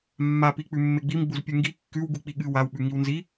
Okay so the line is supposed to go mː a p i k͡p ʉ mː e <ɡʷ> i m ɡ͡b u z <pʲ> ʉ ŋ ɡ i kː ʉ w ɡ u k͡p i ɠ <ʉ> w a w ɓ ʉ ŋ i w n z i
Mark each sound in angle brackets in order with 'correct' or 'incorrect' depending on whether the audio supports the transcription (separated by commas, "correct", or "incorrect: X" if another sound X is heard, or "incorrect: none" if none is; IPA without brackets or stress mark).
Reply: incorrect: ɡ͡b, correct, incorrect: ɨ